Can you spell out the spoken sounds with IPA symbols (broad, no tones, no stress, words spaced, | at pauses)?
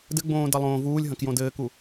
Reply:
dɘɡ͡bõː dɐlˠõːvuːlʲɦɐ̃k jõdɘːku